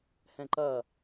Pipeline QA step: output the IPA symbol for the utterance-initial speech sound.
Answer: h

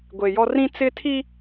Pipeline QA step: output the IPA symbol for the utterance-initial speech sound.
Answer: ɡʷ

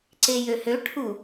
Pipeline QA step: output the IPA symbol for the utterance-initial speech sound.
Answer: ǀ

